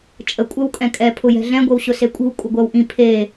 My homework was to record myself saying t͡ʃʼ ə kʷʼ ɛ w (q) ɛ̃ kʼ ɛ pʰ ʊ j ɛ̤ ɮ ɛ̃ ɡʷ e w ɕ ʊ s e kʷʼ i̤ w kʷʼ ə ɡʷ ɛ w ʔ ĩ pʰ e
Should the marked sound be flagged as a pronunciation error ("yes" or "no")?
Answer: yes